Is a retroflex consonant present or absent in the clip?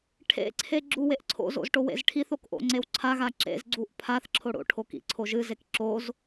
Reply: present